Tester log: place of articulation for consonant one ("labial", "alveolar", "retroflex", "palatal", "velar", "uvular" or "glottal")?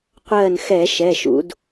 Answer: uvular